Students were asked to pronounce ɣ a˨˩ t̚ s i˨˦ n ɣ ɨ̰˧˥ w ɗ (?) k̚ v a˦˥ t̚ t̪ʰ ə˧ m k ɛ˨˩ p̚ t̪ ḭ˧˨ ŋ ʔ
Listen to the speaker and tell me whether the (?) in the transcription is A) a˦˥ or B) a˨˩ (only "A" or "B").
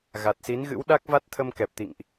A